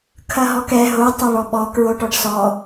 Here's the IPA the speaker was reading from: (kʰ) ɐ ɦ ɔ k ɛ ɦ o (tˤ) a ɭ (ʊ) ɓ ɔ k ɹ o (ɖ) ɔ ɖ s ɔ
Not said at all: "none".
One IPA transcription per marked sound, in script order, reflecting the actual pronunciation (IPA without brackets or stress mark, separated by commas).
kʰ, tˤ, ɔ, ʈ